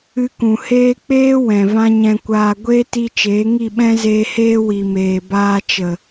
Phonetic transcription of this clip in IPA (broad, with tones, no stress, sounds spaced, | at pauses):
ɨ˧ k ũ˨ h eː˦ k͡p eː˦ w ɛ̃˨ v ã˦ ɲ ɛ̃˧ kʷ aː˧ ɡʷ eː˦ t i˧ t͡ʃ eː˨˦ ŋ i˦˨ ɓ ɛ̃˦ z eː˧ h eː˦ w i˨ m eː˨ b aː˧ t͡ʃ ə˨